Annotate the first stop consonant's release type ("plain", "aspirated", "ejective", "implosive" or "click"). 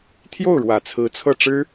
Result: aspirated